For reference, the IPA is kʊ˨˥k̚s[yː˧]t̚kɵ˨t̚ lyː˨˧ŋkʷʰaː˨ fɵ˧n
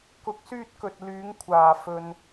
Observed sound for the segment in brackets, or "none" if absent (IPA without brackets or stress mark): yː˧